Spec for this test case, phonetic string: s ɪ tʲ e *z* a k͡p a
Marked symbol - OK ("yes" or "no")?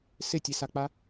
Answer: no